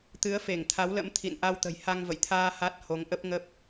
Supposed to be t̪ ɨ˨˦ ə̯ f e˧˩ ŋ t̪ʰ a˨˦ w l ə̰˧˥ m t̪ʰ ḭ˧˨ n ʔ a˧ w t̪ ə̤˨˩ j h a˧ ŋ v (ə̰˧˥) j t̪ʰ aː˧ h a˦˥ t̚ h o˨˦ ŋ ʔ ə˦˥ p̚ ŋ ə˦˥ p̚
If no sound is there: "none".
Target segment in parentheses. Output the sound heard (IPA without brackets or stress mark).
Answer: ə̰˧˨